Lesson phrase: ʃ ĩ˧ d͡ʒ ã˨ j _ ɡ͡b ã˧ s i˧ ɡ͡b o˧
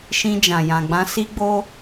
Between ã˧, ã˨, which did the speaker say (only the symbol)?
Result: ã˨